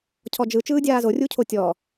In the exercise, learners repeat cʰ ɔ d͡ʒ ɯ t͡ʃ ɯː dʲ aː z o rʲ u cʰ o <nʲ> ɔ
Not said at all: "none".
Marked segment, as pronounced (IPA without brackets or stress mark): tʲ